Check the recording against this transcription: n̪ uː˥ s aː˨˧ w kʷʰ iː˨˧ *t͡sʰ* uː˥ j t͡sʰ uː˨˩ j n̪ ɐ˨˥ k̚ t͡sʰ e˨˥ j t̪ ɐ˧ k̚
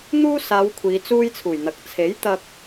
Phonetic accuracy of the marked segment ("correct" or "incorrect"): incorrect